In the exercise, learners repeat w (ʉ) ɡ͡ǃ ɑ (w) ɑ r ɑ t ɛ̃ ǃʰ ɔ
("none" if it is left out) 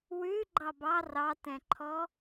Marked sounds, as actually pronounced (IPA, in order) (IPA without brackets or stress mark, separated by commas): ʉ, b